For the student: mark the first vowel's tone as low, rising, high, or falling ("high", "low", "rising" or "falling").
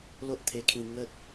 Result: high